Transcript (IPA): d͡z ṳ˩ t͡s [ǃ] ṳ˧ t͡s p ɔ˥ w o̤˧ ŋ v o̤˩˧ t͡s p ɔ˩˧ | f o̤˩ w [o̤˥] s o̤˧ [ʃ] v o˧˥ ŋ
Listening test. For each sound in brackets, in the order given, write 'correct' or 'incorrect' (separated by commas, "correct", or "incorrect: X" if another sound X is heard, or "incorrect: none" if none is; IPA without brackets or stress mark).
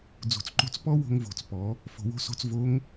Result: correct, incorrect: o̤˧, incorrect: t͡s